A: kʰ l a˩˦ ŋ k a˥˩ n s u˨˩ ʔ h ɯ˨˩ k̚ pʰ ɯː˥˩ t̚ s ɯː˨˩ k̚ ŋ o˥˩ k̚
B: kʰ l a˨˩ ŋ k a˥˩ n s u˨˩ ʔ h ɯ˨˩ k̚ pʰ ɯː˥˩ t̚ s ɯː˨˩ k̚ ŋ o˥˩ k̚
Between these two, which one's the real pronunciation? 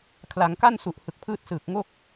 A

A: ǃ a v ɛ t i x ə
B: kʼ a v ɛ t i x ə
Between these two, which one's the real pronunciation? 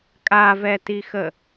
B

